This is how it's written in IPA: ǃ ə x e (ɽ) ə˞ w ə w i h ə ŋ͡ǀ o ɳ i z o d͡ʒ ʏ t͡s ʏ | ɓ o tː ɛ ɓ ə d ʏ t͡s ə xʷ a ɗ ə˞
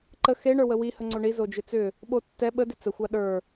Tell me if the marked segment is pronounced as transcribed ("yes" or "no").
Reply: no